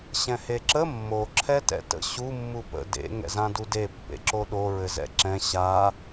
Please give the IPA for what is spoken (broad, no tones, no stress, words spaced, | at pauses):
ɕɛ̃heǁə mːo ǁʰɛtɛ̰tə̰ ɕu mːupə̰ dḛ ŋɛ̰zãdude pːḛǁoɗo ɹɘzɛ̰ǁɛ̃ ɕa